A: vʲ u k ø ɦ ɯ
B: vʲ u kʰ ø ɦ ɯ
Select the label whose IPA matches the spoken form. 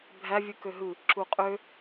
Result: A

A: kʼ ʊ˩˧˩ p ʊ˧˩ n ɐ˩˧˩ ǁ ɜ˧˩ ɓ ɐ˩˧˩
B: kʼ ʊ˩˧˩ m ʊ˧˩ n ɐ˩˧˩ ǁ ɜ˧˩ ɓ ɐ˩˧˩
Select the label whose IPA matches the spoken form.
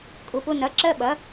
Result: A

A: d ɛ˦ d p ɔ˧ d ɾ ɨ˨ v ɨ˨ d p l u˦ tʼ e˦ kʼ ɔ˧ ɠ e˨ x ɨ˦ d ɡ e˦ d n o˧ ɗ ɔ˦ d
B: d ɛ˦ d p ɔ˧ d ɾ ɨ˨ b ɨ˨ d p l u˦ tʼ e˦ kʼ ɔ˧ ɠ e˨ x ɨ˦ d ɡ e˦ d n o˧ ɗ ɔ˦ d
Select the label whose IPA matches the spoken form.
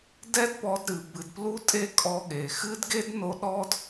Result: B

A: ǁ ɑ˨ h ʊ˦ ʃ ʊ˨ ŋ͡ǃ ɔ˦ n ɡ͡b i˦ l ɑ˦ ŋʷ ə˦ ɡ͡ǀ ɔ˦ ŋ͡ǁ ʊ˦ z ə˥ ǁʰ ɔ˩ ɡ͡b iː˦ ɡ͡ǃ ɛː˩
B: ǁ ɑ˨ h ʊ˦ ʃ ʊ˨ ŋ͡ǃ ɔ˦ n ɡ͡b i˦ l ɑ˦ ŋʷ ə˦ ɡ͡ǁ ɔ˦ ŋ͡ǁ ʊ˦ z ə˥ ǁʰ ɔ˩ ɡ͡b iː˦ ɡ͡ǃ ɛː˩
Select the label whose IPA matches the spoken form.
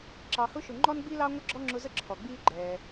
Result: B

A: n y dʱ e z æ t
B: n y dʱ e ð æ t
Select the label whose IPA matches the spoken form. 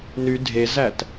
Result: A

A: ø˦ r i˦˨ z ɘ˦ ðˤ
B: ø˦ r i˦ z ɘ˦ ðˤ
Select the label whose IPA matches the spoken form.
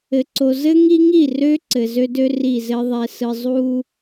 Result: A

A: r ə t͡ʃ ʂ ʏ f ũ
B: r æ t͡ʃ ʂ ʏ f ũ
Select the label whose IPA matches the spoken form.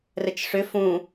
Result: A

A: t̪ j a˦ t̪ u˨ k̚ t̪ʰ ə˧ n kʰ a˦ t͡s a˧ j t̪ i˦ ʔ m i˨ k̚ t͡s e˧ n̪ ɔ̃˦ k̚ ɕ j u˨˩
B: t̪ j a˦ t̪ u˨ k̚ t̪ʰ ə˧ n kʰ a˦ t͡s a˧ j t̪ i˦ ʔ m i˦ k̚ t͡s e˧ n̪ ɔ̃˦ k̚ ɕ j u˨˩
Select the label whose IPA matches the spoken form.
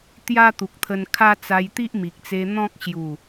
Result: A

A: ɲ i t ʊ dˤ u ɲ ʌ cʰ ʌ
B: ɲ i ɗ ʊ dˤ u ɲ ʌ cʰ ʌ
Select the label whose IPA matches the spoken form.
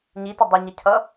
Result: A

